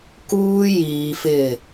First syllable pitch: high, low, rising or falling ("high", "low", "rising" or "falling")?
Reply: high